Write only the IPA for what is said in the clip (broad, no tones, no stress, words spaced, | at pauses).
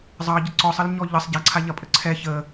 zˤɑɟə ǀɔsˤəlɲɔ ʎəsˤ ɟaǀʰaʎɐpʼə ǀʰɛ çə